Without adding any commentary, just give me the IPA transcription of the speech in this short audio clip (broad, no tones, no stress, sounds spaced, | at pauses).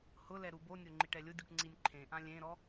h ʊ l ɛ ɾ u b o nʲ o ŋ͡ǃ i ʈ ɛ lʲ ʊ dʲ u ʈ ŋ͡ǀ i nʲ ǃʰ ẽ ʔ ã lʲ ẽ ɾ ɔ